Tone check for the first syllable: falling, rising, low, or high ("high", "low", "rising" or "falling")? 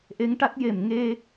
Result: rising